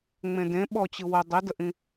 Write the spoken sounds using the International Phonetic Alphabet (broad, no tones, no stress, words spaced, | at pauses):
ŋ͡mẽdẽ ɓɔt͡ɕɯ wə dˤidəʔĩ